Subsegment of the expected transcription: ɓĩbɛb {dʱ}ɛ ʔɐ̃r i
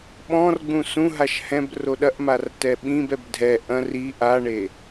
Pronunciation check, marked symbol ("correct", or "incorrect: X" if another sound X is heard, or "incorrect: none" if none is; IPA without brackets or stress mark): correct